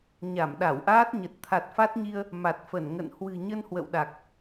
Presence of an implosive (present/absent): present